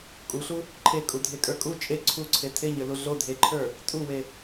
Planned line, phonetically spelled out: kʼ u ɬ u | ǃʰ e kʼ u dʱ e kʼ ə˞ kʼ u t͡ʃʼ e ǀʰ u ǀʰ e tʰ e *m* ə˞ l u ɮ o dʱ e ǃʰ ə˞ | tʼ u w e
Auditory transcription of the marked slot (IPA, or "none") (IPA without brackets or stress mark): ɲ